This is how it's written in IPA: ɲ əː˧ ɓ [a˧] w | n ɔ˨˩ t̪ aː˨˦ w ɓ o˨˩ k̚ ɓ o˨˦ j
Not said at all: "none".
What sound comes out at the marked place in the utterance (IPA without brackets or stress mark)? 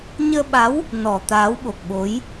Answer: a˨˦